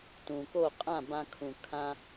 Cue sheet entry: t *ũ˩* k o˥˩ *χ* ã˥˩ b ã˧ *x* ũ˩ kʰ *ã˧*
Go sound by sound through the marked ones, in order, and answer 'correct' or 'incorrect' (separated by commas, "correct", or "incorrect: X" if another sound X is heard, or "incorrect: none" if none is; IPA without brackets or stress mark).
correct, incorrect: qʼ, incorrect: kʰ, correct